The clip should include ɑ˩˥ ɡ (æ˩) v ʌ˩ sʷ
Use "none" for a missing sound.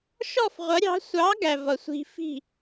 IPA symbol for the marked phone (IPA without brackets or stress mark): æ˩